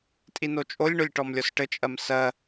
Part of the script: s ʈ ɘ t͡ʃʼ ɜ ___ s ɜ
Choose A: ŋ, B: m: B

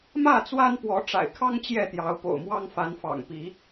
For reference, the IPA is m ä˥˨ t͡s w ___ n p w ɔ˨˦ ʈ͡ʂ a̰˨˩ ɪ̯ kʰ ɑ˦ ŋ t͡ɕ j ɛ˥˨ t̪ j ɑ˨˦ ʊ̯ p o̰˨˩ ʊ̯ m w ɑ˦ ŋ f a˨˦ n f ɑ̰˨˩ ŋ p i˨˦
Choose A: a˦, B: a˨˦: A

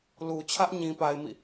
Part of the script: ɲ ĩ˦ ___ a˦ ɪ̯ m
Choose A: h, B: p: B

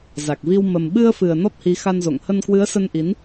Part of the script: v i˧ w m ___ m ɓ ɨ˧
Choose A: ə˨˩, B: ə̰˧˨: A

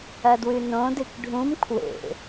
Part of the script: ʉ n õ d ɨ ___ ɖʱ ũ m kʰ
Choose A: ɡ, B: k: B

